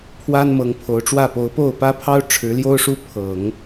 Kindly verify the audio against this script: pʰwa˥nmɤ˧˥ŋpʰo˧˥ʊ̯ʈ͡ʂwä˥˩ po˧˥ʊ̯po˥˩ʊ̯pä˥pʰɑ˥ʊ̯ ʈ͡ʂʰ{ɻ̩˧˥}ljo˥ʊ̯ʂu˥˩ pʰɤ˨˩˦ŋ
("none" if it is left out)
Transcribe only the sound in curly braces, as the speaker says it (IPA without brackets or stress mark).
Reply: ɻ̩˧˥